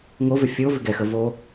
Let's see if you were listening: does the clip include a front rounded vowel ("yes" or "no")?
yes